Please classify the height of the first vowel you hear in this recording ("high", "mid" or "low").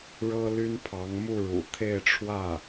mid